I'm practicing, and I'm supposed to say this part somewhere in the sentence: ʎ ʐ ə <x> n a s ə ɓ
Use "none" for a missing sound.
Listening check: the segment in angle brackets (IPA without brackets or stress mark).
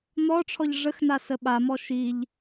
x